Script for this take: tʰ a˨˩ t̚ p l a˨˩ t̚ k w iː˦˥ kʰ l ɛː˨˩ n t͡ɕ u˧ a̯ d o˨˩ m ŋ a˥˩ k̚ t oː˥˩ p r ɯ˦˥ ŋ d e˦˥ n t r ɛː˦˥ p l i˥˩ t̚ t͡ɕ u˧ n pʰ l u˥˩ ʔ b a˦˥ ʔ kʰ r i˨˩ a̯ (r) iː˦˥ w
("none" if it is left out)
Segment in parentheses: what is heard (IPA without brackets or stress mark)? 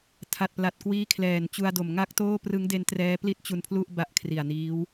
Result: n